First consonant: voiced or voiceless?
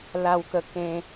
voiced